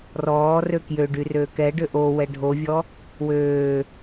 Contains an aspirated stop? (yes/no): no